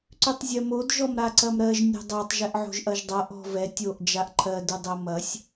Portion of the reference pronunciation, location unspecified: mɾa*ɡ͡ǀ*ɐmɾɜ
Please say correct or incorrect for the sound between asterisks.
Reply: incorrect